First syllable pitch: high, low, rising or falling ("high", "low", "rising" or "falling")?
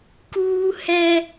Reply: high